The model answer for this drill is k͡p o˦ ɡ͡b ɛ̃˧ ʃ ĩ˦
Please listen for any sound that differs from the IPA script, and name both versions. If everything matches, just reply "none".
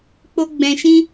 none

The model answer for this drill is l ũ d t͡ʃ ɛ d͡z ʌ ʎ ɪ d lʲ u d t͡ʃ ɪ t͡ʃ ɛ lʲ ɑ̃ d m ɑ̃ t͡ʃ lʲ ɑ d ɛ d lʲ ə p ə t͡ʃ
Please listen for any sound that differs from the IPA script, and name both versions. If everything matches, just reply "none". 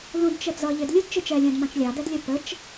none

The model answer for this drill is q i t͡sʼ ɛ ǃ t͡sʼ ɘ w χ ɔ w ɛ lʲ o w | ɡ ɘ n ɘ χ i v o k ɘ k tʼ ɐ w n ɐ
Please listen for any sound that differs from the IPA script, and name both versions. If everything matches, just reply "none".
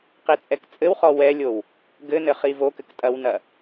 ǃ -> k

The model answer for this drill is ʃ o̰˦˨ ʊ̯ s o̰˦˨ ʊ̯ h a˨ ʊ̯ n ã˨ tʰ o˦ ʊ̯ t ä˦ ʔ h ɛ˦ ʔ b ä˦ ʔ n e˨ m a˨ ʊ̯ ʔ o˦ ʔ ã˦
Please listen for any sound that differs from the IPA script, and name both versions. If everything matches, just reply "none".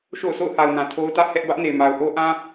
none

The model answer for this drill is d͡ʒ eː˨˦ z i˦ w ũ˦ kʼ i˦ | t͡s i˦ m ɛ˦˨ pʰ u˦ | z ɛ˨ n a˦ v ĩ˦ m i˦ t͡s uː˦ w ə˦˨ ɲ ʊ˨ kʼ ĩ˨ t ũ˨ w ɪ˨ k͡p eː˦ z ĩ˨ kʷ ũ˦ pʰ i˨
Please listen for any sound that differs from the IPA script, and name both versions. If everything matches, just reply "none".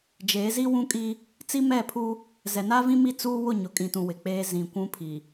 ə˦˨ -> ʊ˦˨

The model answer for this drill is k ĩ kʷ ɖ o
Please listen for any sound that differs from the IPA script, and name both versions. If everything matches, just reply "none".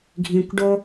k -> ɡʱ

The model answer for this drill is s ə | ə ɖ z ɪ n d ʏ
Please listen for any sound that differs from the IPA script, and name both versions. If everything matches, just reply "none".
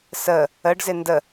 ʏ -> ə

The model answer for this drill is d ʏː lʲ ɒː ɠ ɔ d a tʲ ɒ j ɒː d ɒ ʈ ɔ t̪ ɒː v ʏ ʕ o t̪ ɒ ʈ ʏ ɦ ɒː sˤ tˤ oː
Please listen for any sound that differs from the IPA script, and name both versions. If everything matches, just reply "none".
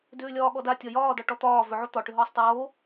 none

